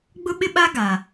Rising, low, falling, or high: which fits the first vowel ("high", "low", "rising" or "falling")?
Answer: high